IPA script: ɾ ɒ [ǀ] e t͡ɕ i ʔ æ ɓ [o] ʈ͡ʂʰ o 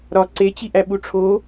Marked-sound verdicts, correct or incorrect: correct, incorrect

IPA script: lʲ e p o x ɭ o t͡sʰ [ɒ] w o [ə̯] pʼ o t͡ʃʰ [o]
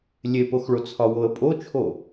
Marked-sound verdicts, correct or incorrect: correct, correct, correct

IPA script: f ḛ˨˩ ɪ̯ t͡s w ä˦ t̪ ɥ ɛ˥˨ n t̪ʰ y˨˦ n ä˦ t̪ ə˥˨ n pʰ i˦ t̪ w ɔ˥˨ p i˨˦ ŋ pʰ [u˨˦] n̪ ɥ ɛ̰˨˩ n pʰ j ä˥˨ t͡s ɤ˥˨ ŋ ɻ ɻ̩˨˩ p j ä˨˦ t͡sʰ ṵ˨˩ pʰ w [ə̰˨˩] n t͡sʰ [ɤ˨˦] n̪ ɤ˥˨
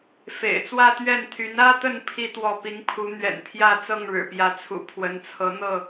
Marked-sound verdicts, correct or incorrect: correct, incorrect, correct

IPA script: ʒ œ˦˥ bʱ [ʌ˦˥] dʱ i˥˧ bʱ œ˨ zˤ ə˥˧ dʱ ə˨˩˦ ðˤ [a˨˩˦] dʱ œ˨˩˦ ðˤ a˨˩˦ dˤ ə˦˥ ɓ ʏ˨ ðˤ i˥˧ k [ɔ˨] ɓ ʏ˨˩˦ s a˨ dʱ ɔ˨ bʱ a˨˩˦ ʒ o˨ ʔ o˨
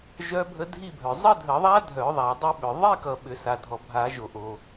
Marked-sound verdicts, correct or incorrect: incorrect, incorrect, incorrect

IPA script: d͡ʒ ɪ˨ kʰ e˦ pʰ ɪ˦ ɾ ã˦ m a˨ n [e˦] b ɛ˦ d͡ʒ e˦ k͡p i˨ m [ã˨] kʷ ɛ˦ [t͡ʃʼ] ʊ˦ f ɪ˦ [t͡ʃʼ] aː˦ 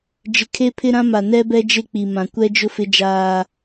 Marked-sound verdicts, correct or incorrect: incorrect, correct, incorrect, incorrect

